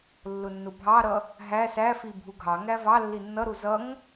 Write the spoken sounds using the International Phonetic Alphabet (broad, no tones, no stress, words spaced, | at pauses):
lːʊnːʊbʱɑɾʌ | ɦæ sæfi bʱuɡʱɑŋæ vɑ lːinːʌɾu zʌŋ